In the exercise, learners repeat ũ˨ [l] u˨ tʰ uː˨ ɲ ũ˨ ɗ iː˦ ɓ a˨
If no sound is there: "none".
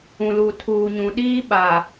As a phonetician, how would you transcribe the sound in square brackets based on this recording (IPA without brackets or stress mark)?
l